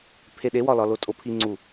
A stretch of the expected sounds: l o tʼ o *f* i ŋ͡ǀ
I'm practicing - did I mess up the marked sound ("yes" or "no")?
yes